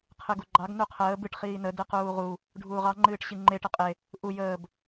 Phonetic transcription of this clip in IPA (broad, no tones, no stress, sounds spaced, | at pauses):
qʰ ɨ ɡ u ɡ͡ǃ ɑ ɡ n u qʰ əː b ɨ ʈ χ iː n ə d ɨ q uː ʁ u | ɖʱ uː ʁ ɑ ŋ͡ǃ ɨː ʈ ɕ i ŋ͡ǃ e ʈ ə qʼ e | ʔ u j əː b